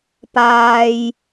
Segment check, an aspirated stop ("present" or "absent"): absent